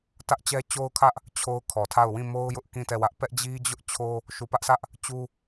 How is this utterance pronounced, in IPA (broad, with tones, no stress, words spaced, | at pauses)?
tä˦ʔt͡ɕɛ˦t͡ɕo˦ʊ̯kʰä˦ʔ | t͡ɕʰo˦ʊ̯kʰɔ˨tʰa˦˨ʊ̯ wĩ˦˨mo˦ʊ̯jʊ˦ʔ kĩ˦˨tɛ˦˨wä˦ʔ pɛ˦ʔd͡ʑi˦d͡ʑʊ˦ʔ t͡ɕʰo˦ | ʃu˨pä˦ʔsä˦ʔ | t͡ɕu˦